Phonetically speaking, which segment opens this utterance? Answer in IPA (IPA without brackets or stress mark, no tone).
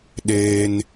ɗ